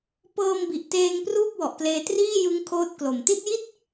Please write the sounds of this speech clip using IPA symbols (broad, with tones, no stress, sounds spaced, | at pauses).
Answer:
p ɤː˧ m b i˨˩ ʔ t eː˧ ŋ p r uː˥˩ p̚ w ɔ˨˩ ʔ k l eː˧ t r iː˥˩ j ɯ˦˥ ŋ kʰ oː˦˥ t̚ k l o˨˩ m t i˥˩ t̚ j i˥˩ t̚